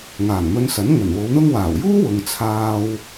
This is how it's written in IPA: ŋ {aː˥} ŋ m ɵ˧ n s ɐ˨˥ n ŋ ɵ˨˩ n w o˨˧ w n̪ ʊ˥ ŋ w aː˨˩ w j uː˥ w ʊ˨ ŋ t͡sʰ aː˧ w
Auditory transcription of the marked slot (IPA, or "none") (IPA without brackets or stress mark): aː˨˩